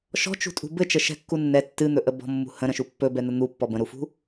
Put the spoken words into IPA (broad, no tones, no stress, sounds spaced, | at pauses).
ʃ ɔ̤ t͡ʃ ṳ tʼ ṳ b ɘ t͡ʃ ə ʃ ɛ̤ kː u nː ɛ tː ɨ n̪ ɵ ʔ ə b ɔ̤ mː ṳ h ə̃ ɾ ə̃ ʃ u pː ɵ b ɛ n̪ ə n̪ u pː ɔ b ə̃ ɾ u f ṳ